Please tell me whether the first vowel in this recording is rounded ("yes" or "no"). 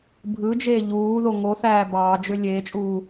no